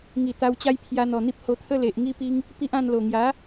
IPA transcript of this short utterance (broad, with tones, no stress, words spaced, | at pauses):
ŋi˨˩t̪a˧wt͡ɕa˦j pʰja˧n̪ɔ˨˩n̪i˦p̚ ho˧t̪ʰə˦ le˨ʔ ŋi˦pi˦ŋ | pi˦ʔã˥˧n lo˨˩ŋja˨˦